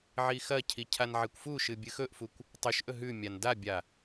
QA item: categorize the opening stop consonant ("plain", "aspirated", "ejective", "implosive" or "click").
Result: aspirated